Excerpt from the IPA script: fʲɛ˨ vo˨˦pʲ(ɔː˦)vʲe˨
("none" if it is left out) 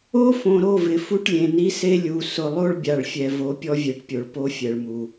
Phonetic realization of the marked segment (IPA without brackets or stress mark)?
ɔ˦